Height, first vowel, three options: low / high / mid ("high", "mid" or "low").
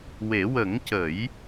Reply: mid